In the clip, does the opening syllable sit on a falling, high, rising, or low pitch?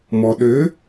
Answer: low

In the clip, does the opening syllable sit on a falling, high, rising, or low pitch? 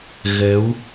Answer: rising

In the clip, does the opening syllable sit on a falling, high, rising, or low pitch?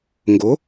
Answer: rising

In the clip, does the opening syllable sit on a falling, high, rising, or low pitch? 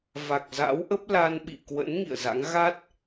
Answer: low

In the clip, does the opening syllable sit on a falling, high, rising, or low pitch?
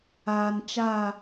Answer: low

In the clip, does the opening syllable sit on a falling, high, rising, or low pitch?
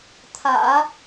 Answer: low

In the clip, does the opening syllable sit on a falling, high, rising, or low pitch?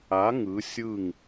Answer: rising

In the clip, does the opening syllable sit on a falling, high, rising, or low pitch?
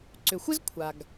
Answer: low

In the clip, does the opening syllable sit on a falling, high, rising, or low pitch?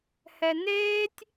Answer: low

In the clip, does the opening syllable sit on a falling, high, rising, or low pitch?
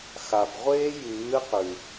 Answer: low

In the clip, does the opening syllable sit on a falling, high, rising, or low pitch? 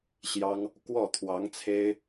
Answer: high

